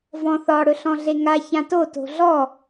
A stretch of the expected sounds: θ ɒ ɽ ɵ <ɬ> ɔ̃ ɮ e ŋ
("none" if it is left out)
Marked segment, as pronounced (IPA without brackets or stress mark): ɬ